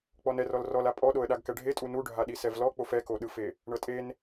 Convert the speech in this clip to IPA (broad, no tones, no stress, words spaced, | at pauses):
k͡pɔnɛ rɔlrɔla pʼɔɗoə̯ɗaɡ kɛɖʱetʼu nuɖʱaɗi sɛvlɔk͡pof ɛkoɗɯfe | ɳɤtʼen